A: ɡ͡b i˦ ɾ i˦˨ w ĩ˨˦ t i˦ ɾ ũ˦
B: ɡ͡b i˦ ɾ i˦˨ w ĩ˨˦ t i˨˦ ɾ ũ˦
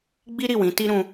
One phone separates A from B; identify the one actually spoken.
A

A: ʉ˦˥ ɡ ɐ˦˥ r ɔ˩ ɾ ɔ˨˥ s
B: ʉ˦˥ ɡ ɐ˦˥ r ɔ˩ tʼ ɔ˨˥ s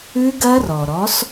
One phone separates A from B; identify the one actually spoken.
A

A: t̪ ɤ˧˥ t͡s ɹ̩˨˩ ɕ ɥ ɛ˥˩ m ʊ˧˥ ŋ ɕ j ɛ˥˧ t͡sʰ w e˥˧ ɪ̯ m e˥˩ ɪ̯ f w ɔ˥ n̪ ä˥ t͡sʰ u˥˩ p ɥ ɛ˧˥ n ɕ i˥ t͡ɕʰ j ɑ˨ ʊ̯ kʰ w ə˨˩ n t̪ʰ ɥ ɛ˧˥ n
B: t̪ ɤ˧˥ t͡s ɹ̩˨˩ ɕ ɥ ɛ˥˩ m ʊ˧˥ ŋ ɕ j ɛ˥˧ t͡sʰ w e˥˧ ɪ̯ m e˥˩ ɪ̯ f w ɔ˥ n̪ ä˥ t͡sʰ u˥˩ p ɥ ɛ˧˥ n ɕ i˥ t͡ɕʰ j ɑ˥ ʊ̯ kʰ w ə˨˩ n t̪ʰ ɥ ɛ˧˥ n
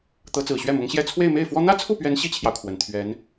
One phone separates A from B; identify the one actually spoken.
A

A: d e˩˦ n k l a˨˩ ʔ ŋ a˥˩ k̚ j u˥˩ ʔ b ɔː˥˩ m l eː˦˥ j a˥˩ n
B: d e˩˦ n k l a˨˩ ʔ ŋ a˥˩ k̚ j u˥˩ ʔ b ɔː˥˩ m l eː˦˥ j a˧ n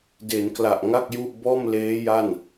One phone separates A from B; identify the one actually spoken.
A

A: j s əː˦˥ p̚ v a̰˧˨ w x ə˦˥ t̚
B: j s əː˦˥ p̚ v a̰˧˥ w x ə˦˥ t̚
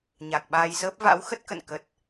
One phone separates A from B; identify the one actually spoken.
B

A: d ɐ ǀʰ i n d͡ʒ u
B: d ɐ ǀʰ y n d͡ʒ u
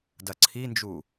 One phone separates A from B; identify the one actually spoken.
A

